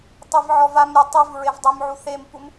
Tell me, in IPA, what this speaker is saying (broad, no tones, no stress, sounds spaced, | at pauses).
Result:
tˤ i v ʕ ɔ v a m ɾʲ ɛ tˤ i v ɹ e v dˤ ɯ m ʕ u θ e m p u m